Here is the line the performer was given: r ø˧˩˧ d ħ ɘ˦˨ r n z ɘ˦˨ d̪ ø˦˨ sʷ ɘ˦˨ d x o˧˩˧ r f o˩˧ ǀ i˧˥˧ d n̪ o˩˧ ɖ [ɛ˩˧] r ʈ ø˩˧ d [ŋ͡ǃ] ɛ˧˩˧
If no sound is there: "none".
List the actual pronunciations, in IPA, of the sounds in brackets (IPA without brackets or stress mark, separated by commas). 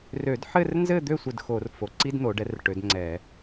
ɛ˩˧, ŋ͡ǀ